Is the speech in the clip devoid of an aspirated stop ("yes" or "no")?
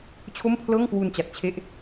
no